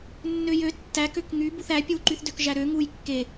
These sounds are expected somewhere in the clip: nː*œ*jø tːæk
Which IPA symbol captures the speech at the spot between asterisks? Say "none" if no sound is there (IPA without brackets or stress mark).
ø